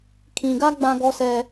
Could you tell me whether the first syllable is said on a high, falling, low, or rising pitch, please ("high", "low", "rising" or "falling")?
low